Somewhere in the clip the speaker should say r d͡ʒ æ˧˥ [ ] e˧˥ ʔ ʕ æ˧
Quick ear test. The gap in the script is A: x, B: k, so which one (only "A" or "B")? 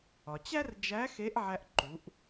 A